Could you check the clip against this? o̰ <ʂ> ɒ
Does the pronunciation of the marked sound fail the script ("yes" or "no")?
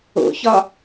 yes